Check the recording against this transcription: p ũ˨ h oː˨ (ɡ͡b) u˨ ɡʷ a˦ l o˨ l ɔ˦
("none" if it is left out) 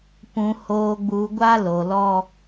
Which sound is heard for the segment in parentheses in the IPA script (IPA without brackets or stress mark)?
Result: ɡ͡b